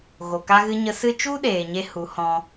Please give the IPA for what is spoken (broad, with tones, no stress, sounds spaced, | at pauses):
ɣ o˨ k a˧ ɣ ɨ˧ ɲ ə˧ s ɨ˦ t͡ʃ u˦ ɗ eː˨ ɲ e˧ h u˨˦ h ɔ̃˧